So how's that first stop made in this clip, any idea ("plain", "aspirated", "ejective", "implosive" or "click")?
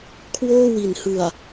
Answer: aspirated